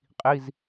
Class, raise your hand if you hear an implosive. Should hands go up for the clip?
no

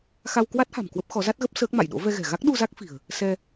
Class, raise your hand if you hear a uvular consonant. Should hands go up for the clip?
no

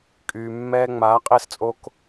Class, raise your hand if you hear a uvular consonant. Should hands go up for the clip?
yes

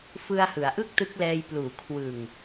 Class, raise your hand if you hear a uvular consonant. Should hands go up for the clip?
no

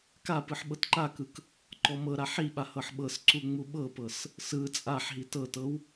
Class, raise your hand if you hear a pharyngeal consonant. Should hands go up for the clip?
yes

